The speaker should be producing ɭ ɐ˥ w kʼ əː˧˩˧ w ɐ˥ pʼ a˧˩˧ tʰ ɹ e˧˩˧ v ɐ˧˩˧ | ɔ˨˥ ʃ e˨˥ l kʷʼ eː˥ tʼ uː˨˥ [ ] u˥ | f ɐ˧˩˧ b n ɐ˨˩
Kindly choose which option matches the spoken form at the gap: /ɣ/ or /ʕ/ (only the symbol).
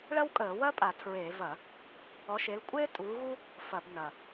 ɣ